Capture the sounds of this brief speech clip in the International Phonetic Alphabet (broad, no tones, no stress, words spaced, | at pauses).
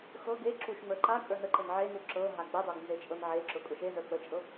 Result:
xɤ ɡe ǁuʃŋ͡mə˞ ǃa kʼə˞nəǃən ʕenu ǁɤ ɦaɡ͡bədˤoɡ nzet͡ʃʼɤnʕeǁʊ kʼʊʃezə˞ k͡pət͡ʃʼɤ